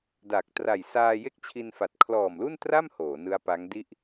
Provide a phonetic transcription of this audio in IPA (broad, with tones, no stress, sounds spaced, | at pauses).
d a˨˩ k̚ t r a˨˩ j s aː˧ j e˥˩ k̚ t͡ɕʰ i˧ n f a˨˩ t̚ kʰ l ɔː˨˩ m l u˥˩ n t r a˥˩ m h oː˩˦ n ɯ˦˥ a̯ p a˦˥ ŋ d i˥˩ ʔ